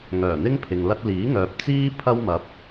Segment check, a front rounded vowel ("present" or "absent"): present